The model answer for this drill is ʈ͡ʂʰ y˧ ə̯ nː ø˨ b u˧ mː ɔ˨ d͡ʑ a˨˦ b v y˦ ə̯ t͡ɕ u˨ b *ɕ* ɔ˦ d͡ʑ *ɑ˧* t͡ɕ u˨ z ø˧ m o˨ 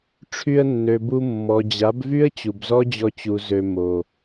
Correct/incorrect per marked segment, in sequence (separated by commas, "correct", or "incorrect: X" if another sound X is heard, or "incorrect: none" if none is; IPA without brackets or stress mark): incorrect: z, incorrect: ɔ˧